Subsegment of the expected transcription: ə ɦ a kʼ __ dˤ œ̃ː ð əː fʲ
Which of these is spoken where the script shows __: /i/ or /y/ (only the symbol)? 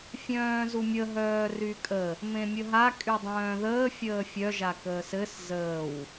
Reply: y